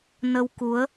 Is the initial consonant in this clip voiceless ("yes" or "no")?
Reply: no